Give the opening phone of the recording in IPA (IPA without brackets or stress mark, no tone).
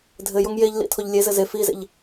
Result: dʱ